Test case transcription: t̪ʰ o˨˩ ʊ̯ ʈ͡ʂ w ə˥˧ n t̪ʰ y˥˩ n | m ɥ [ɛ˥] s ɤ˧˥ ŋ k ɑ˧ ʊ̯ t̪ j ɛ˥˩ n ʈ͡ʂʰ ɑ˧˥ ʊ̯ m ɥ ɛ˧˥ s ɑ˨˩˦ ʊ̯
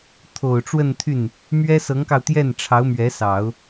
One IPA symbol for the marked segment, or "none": ɛ˥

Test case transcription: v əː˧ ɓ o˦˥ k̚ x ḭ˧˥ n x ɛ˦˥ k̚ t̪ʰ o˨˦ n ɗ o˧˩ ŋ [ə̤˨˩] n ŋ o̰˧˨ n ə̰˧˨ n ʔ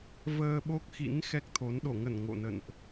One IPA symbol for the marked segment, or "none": ə˧˩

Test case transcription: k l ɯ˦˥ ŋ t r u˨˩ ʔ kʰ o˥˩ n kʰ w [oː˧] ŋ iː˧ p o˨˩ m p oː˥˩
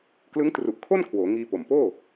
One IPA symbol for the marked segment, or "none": oː˩˦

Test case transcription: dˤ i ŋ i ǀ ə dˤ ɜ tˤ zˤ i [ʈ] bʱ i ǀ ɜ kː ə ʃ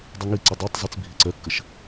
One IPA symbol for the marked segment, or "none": t͡s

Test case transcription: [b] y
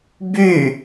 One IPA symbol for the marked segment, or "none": b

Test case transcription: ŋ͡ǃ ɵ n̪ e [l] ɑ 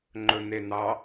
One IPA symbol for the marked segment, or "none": n̪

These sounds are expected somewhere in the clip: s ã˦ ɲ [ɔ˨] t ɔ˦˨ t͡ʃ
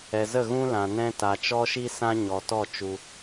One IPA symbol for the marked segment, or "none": ɔ˨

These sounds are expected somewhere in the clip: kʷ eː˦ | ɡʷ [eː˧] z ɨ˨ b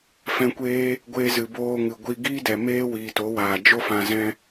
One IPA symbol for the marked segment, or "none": eː˧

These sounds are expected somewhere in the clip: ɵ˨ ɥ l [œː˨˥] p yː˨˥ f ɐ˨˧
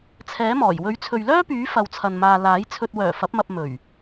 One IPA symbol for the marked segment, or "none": œː˥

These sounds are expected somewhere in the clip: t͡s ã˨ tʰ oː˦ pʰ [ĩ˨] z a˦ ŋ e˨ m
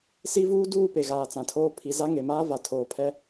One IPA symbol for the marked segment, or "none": i˨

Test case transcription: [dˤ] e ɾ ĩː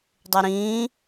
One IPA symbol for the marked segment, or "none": dˤ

